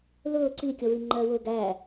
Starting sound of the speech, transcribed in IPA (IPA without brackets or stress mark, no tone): l